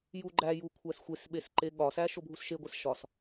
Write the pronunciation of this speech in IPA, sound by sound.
j u ɡ͡ǃ æ j u kʷʰ æ s xʷ e s ɓ e s ǃ e ɠ ɒ s æ ʃ o bʱ u s ʃ e ɡʷ e s ʃ ɒ s

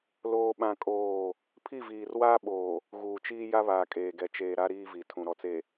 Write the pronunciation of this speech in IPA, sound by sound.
l oː˦ ɓ ã˦ kʼ oː˦˨ | pʰ i˦˨ v iː˨ r w aː˦ ɓ oː˨ | ɣ uː˨ t͡ʃ iː˦ j a˦ β aː˨ kʼ eː˨ ɡ ɛ˨ t͡ʃ eː˨ ɾ a˦ ɾ iː˦ v i˨ tʰ ũ˨ ɾ ɔ˨ t͡s e˨

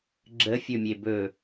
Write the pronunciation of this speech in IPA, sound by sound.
ɡ͡ǁ ə fʲ ɵ mʲ e b ɵ

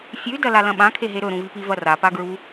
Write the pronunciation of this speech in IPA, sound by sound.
fʲ ʉ d ɐ l a l ɐ̃ ɓ ã kʰ e ɦ e ɾ ɵ ɾ ũ v i p i v ɐ r a p a ɡ ɹ u

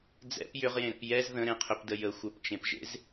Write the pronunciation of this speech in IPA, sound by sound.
d͡z ɛ̰ p j ʏ ʁ j ẽ ɾ ə̰ p j ɛ z ð ə̃ ɾ ẽ qʰ ʏ p d ə j ə xʷ ə˞ p t͡ʃ ẽ p ʒ ḛ z

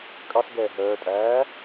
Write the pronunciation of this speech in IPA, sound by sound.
kʼ ɑ s ɡ ɛː ɦ œː tʼ æː

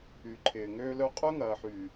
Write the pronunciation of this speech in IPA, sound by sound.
y˨ ǃʰ ɪː˨ ŋ øː˦ l œ˦ qʼ œ˦ ŋ ɐː˨ ħ y˨

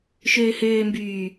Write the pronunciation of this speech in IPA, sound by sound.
ʃ øː h øː m b yː

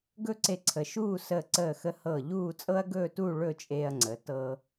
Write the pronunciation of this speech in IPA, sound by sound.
ɡ ɵ˥ ǀ e˧ ǀʰ ə˩˧ ʃ uː˥˧ s əː˧˩ ǀ əː˧˩ x ə˧ h ɤː˧˩ ʎ uː˥˧ t͡sʼ ɤ˥ ɐ̯ ɡ ɵː˥˧ t uː˥˧ ɭ ɵ˥˧ t͡ʃʼ eː˧ ɐ̯ ŋ͡ǀ ə˩˧ t ɤː˧

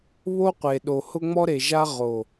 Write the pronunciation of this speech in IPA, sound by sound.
β o˦ qʷ e˨ ɗ o˨ h ʊ˦ ŋ͡m ɔ˦ ɾ e˨ ʒ a˦ ʁ o˨

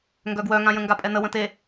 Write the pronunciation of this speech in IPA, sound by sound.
ŋ ɡ œ ɡ w œ ŋ ã j ə̃ ŋ ɡ a pʼ ɛ n ə w ə̃ t e

